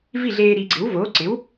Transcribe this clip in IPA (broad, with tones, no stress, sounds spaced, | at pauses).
v i˥˩ ɮ eː˧ ɾ i˩˧ ɡ͡ǀ ɪ˩˥ w v oː˩˥ ǀ ɪ˩˥ w